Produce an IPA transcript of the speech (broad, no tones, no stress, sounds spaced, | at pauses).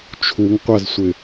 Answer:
t͡ʃʰ u ŋ qʷ a z sʷ ɪ